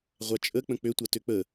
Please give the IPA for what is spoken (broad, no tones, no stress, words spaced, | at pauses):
ʁʷat͡ʃʼək͡pə̃ k͡pøtʷa tøk͡pə